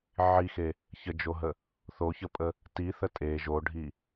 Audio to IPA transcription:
ʕixe | çəd͡ʒoɦə | θoçəpʼə | tiθə tʼe ʒoɖʱi

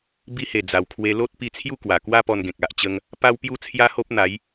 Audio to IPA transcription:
bi˧he˨˩ d͡za˨˩wkʰwe˧ lo˦t̚pi˧t͡sʰju˥˧ kwa˨˩kwa˦pɔ˧nɡẽ˨k̚ a˨ʔt͡ɕə˧ŋ | pa˦wpju˦ t͡sʰja˦ho˦p̚n̪a˨˦j

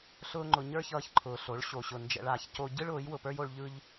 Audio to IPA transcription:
ɬʊː˦ŋ͡ǃʊ˧ ɲə˞˦çʌː˧çǃʰʊː˨ ɬo˨˦ɭ ɕo˨ɕʊ˨ nd͡ʒɛ̰˧ɭaː˧ç co˧ ɟɯ˦ɭ ʊː˨˦jwʊ˨pə˞˦jo˧ɭ ʎɯ˦ʎ

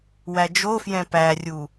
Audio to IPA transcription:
wæd͡ʒofjɛ̃ pærʲu

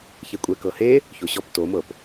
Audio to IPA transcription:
çekʷʼɛ kɤhe | çoɕɔp tomɤp

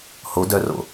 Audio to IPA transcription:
ho dœro̰

